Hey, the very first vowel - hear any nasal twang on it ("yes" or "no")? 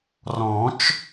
yes